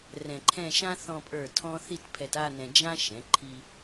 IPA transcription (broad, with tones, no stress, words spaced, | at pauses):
rɛ̃˧ǃʰɛ̃˥˧ ʃã˥ θɔ̃˧pʼə˞˧˩ tʰɔ̃˥ θi˥˧tpʰɛ˧ta˥˧nɛ̃˧ d͡ʒã˥ ʃɛ̃˩˧ǃʰi˧